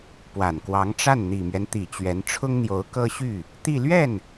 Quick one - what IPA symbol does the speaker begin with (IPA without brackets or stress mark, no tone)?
p